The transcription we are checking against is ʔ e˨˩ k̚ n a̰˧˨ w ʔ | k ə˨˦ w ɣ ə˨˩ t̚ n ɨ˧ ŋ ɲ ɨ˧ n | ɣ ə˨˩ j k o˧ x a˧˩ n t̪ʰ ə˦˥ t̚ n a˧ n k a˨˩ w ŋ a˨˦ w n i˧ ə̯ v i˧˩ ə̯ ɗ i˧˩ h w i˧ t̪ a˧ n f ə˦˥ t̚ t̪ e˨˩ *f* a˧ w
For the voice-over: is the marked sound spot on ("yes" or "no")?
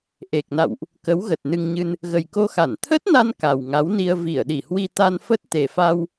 yes